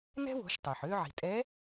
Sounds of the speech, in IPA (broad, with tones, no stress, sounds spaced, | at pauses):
n ɛ̤˥ w o̤˧˥ ʃ tˤ ø˩ ħ ø˥ ʕ i̤˩ tʼ ɛ˧˥